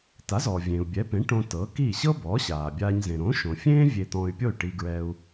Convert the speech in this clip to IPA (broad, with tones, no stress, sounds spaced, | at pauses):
t a˩˥ z ɔ˩ vʲ ẽː˩ u̯ bʲ ɛ˩˥ p ẽ˩˥ ʈ õ˧ t ɤ˩˥ k i˥˩ ɕ ɤ˥ b ɔː˩˥ ɕ aː˩ bʲ aː˧ ɲ z ẽ˩ ɾ õ˩˥ ʃ õ˩ fʲ ẽː˥ vʲ e˧ t̪ ɔ̃˧ y̯ pʲ o˥˩ y̯ ʈ i˧ ɡ ɹ ɛ˧ u̯